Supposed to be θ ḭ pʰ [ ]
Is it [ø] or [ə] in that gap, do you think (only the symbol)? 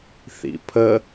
ə